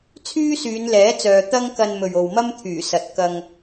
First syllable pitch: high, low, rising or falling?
high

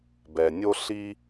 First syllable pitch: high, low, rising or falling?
low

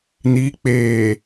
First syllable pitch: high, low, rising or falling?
rising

